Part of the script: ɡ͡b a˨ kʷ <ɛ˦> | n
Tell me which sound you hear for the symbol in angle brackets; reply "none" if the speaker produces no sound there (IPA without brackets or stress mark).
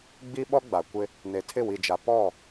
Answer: ɪ˦